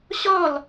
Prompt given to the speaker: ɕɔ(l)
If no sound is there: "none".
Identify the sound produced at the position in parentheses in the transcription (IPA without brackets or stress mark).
l